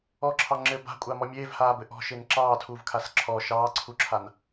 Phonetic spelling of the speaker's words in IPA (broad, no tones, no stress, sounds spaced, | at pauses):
ɔ ǁʰ ɑ ŋ͡ǁ ɘː b a̤ kʷʼ a m ɔ mʲ eː v h aː b ɘ ʔ ɔ̤ ʃ e n ǁ ɑː tʰ uː v kʰ a s ǁʰ ɔ ʃ ɑː ǀʰ u ǁʰ a n